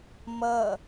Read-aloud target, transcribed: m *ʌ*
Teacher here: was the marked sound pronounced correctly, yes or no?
yes